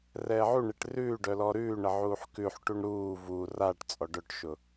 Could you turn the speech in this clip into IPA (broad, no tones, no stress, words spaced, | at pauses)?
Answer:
rɛːʕuɳeʈ rʉː ɖœlɔɾʉːɳə ʕuːħkʉħʈuɳ ɾuː vu raʈ t͡sʼɔɖœʈʃʊ